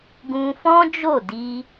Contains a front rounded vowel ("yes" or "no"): no